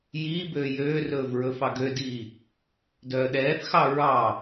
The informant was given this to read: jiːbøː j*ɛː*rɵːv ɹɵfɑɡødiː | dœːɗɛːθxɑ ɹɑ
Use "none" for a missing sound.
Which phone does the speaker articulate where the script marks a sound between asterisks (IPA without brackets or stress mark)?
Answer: øː